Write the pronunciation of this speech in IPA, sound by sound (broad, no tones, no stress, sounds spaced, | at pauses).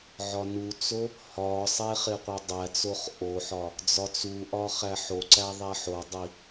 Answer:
ʕ ɒ n u t͡s o | h ɒ sˤ e χ e qʷ e dˤ æ t͡s o χ ʔ o ħ ɒ | d͡z ɒ t͡s u ʔ ɒ χ æ ħ o ǀ æ ðˤ æ ħ o dˤ i